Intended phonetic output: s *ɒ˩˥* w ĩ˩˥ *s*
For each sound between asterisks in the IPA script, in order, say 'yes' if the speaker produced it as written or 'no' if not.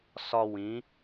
no, no

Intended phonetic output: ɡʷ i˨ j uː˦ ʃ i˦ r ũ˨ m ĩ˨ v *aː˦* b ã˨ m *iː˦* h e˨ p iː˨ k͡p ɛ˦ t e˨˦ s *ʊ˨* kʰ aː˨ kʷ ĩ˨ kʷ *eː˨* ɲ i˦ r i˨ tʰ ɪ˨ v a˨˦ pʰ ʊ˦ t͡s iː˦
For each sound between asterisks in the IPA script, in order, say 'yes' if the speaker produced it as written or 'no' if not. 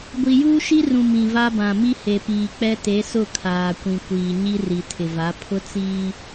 no, no, no, no

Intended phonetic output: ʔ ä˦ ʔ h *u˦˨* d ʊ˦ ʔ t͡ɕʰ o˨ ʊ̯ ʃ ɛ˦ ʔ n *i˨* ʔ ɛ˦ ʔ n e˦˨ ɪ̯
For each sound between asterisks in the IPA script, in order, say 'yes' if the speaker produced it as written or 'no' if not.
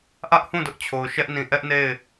no, no

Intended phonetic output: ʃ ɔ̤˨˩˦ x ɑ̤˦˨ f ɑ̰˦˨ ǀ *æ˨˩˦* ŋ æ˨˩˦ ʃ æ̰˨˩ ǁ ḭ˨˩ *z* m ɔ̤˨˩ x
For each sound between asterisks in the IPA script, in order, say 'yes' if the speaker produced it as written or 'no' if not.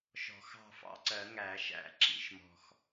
no, no

